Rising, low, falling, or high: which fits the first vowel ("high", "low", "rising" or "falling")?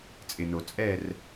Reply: low